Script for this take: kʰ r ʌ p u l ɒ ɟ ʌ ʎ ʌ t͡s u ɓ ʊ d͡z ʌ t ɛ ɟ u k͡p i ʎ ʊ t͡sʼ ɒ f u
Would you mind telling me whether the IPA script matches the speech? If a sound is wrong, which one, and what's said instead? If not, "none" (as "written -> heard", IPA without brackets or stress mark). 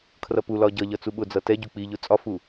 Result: none